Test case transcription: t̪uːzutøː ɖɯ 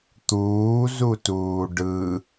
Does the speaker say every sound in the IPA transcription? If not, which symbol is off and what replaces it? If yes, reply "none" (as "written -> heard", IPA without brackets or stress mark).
øː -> uː